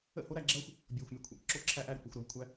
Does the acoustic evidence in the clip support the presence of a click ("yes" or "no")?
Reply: yes